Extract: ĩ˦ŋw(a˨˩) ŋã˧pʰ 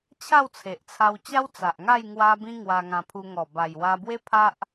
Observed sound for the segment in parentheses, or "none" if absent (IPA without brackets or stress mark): a˧